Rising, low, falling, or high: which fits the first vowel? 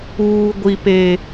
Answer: low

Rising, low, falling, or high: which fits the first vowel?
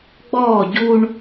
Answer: falling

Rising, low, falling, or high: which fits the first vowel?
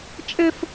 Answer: high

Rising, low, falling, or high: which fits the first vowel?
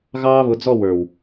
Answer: high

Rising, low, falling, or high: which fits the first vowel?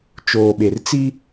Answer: low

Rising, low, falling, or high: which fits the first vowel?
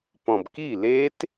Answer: low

